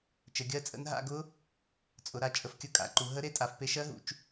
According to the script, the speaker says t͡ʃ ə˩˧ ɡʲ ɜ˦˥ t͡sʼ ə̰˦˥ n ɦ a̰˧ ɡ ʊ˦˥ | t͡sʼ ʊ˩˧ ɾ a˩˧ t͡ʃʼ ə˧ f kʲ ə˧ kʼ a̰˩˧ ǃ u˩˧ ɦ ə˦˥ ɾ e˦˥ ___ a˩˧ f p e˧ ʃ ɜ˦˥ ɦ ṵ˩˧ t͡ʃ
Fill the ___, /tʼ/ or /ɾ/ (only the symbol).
tʼ